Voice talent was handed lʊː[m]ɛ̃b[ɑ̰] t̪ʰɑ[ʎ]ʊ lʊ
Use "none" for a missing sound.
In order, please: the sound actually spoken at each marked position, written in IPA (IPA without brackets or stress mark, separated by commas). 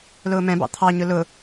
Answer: m, ɑ̰, ɲ